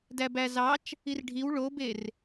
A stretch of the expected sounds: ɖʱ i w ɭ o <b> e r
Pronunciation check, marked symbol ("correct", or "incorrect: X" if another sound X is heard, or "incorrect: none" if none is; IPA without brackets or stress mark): correct